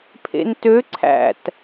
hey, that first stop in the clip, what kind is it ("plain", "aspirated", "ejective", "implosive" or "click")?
aspirated